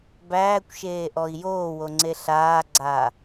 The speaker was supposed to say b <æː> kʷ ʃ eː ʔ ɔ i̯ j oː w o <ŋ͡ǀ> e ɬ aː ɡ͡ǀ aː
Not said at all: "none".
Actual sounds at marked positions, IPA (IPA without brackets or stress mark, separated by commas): æː, ŋ͡ǀ